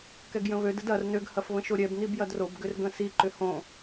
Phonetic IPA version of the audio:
k ɛ ɡ j ə̃ β ø d ə d ɐ r n ø ɡ h ɐ f β ə̃ ʃ o ɾʲ ɛ b n i b j ɐ d r o b ɡ ʏ r ɡ ə̃ s i ǃ ʏ h õ

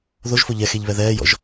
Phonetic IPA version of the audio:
ð o ʒ f o ʎ ɛ x e ʎ β ɛ ð ɛː j ɔ̰ ʒ

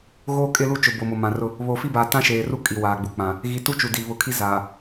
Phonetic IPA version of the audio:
ɣ oː˦ kʼ ɪ˦ l u˦ t͡ʃ ʊ˨ b o˨ m o˨ m ã˨ r ʊ˦ | β oː˨ f i˦ b aː˨ t ã˦ ʃ eː˨ r u˦ kʼ i˨ w aː˨ ɡ͡b u˨ k͡p ã˨ | ɣ i˨ t u˦ t͡ʃ u˨ d i˨ β ʊ˨˦ kʰ i˦ z aː˨

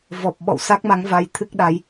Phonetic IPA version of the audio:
v ɔ˨˩ p̚ ɓ ɔ̰˧˨ w s a˦˥ k̚ m a˨˦ ŋ v a˧ j t̪ʰ ɨ˦˥ k̚ ɗ a˨˦ j

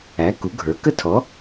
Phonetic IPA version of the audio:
æ˩˥ k u˩˥ ɡʱ ə˞˩˥ k ə˥ tʰ ɔ˩˥

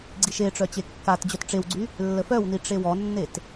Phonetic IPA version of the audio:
ɡ͡ǀ i ʃ e ʈ͡ʂ œ t͡ɕ e kː a t d͡ʑ œ t ʈ͡ʂ e w ɡ͡ǀ y | lː ə f œ w n i ʈ͡ʂ e w ɔ nː e t

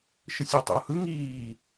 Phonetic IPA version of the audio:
ʃ ɯ sʲ a tˤ ɛ̰ o̯ h ɯ ŋ iː

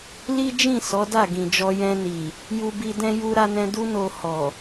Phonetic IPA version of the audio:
l i˦ d͡ʒ ĩ˦˨ s ɔ˨˦ d a˦˨ ɡ ĩ˨ d͡ʒ ɔ˧ j ɛ̃˧ n i˨ | j u˧ b i˧ d ɛ̃˦ j u˧ ɾ a˧ n ɛ̃˧ d u˦ n o˧ h ɔ˨

